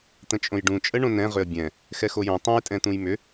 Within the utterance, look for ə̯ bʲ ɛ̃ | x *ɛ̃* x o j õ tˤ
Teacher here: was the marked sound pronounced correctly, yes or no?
no